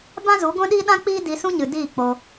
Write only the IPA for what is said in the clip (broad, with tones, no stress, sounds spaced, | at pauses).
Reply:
b ã˦ z u˨˦ ɡʷ ɛ̃˦ ɗ iː˦ ɗ ã˦ k͡p iː˦ d i˧ s ũ˦ ɲ ɨ˨ d iː˦˨ k͡p o˧